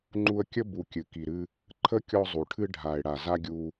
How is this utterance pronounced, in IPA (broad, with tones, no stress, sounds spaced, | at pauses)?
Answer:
ŋ͡ǃ u˧ ə̯ kʲ ə˦ b u˨ kʲ ɨ˨ k i˨ ɾ ɨ˧ | ǃʰ ə˦ kʲ ɔ˧ zˤ u˨ ʈʰ ɨ˧ ɖʱ a˨ ɪ̯ ɽ a˨ z a˦ ɡʲ u˧